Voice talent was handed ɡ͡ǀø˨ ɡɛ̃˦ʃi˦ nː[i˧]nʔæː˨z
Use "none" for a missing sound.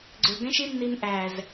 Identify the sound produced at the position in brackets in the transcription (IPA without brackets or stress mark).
i˧